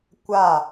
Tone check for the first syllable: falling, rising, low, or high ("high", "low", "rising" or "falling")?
falling